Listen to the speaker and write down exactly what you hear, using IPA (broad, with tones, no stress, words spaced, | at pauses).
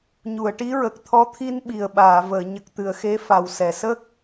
ɲu˨˩˨ə̯ʈi˧˥ɹə˨˩k̚ t̪ʰɔ˧˥t̪ʰi˧n ɓi˨˩ə̯ɓaː˨˩˨vəː˨˩˨ ɲə˨˩k̚t̪ɨ˨˩˨ə̯ xe˧˥fa˨˩wsɛ˨˩˨ sə˦˥k̚